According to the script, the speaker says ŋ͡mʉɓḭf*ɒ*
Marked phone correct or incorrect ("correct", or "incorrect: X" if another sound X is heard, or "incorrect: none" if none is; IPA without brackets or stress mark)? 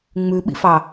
incorrect: ɑ